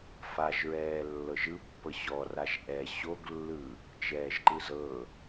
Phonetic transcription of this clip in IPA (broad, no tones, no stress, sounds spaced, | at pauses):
f a ʒ ɹ ɛː lː ɤ ʒ ɯ pː ɤ ɕ ɔ r a ʒ ʔ ɛ ɕ o ɡ lː ɯ | t͡ʃ ɛː ʒ ǃ ɯ z ɤ